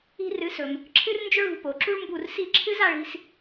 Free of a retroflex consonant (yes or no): no